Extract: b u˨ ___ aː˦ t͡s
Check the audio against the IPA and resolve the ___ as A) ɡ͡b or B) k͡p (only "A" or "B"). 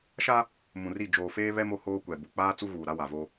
B